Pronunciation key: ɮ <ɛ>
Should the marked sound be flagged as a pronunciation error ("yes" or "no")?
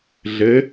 yes